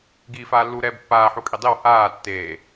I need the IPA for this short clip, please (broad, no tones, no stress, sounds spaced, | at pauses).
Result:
ɡ iː f aː lː u ɾ ɛː b pː aː ħ u kʼ i dˤ i w h aː tː eː